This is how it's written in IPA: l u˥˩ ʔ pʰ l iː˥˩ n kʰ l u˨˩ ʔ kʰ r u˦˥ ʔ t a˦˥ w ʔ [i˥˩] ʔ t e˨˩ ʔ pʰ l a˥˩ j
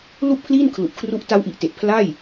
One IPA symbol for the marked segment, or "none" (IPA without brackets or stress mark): i˨˩